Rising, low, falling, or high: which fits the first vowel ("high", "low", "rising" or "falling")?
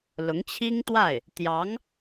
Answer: rising